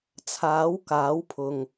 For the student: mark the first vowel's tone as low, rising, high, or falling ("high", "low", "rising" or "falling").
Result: rising